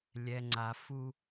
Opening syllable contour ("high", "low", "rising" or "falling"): low